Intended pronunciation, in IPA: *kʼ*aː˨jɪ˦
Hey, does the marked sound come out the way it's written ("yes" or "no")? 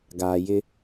no